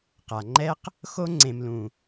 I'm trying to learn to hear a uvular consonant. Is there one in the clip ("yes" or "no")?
yes